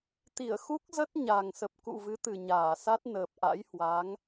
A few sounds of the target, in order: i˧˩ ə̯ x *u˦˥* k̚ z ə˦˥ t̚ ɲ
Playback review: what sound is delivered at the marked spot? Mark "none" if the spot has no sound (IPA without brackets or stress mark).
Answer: u˦˥